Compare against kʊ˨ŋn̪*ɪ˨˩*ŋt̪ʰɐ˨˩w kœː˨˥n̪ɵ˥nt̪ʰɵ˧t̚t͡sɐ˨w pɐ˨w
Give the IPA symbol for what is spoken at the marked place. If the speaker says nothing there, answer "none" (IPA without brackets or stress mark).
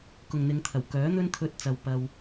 ɪ˨˧